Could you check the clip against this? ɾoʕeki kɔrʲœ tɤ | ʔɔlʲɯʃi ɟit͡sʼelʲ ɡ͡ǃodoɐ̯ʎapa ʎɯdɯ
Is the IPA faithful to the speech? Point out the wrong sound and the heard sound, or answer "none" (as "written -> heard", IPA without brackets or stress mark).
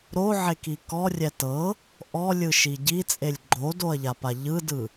œ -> ɛ